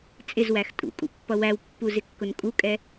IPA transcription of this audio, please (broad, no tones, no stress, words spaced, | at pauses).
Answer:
t͡sʼɪzwæx tʼṵkʼṵpːʌ wæwpːuzɪkːʊn kʼukʼɛ